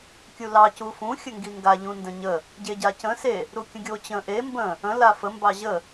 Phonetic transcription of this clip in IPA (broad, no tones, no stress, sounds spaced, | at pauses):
kʲ u l ɑ c u f ũ xʲ ə ŋ ɡ i ŋ ɡ a ʎ ũ n d ə̃ ɲ ə | ɟ e ɟ a c ə̃ s e | ɾ u kʲ ə̃ ɡʲ o t͡ɕ ə̃ ʔ e m b ə̃ | ə̃ l a f ə m b ɑ ʑ ə